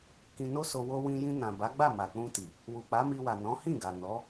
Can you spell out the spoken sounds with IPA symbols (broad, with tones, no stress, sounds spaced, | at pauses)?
k ĩ˧ n o˦ s o˧ w o˧ w ĩ˧ j ĩ˧ n ã˨ b a˨˦ ɡ͡b a˦˨ m a˨ k͡p ũ˧ t i˨ | w u˨ k͡p a˨˦ m i˧ w a˨ n ɔ̃˨˦ h ĩ˦˨ ɡ a˨ n ɔ˨˦